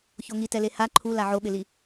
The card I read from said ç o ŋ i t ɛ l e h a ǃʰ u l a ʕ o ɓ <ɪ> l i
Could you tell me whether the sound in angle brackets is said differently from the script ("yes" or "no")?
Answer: no